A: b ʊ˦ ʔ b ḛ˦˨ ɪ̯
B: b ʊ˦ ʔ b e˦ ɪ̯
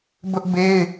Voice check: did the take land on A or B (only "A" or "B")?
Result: B